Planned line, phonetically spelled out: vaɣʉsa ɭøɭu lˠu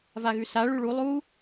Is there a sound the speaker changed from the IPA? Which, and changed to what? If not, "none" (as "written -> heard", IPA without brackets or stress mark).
ø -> ʉ